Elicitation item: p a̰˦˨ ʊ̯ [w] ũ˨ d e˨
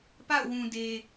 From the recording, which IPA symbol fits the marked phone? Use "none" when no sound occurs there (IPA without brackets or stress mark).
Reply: w